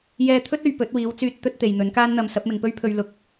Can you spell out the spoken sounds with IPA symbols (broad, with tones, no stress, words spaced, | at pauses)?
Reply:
jɛː˧t̪ʰɵ˥t̚ɵ˨ɥ pɵ˨˥t̚wiː˨˥wt͡syː˧t̚ t̪ɵ˥t̚ t̪e˨jn̪ɵ˨˥nkaː˥nn̪ɐ˧m sɐ˨˥p̚mɪ˨ŋpɵ˥ɥpʰɵ˧ɥ lʊ˧k̚